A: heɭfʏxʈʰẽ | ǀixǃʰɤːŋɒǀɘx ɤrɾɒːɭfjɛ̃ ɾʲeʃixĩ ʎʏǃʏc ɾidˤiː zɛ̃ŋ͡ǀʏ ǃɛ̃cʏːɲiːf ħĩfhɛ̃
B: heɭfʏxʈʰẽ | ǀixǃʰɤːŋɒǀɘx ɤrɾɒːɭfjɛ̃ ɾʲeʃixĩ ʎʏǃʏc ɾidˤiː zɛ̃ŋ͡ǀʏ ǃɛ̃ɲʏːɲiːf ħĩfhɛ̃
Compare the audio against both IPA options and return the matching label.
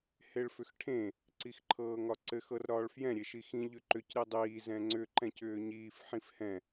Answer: A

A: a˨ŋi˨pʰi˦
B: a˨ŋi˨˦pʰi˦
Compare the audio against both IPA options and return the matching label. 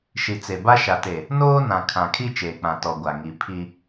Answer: B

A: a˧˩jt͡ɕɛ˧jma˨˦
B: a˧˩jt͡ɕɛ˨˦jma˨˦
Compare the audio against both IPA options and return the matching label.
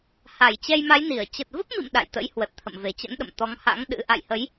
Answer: A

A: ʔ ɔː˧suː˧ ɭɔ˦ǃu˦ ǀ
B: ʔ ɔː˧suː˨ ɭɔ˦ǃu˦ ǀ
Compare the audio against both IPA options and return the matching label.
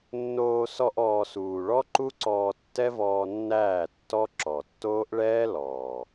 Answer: B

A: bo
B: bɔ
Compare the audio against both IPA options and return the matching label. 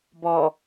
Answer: B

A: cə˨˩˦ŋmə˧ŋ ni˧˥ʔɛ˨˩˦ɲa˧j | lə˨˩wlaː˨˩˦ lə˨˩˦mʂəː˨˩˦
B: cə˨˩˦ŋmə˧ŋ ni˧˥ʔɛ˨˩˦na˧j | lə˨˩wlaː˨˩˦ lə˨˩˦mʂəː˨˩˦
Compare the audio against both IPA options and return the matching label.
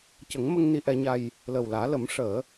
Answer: A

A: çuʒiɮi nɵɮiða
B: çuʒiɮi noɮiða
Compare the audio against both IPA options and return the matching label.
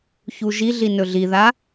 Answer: A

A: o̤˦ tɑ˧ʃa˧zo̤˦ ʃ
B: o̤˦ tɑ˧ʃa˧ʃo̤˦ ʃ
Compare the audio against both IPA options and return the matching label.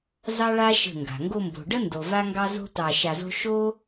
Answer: A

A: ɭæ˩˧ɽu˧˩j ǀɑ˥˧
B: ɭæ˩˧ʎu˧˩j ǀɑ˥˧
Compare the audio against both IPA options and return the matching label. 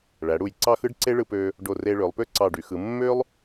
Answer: A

